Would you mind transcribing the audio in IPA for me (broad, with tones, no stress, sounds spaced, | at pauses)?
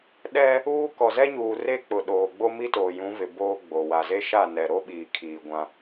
ɗ ɛ˦ | uː˦ k ɔ˨ z ɛ˦ ɲ uː˨ r e˦ k͡p ʊ˨ ɗ oː˨ ɡ͡b o˦ m i˦ t oː˨ j ũ˨˦ v ɪ˨ b oː˦ ɡ͡b o˨ w a˨ z e˦ ʃ a˦˨ n ɛ˨ ɾ o˦ ɓ iː˨ kʰ iː˨ ɡʷ ã˦